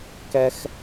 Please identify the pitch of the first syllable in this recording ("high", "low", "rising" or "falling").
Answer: high